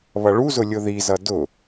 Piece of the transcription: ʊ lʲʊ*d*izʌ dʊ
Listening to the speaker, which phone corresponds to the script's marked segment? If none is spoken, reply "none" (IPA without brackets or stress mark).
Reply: ð